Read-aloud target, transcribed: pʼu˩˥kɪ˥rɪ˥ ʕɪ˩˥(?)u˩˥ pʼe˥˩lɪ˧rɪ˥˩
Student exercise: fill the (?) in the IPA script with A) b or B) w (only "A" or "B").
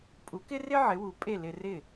B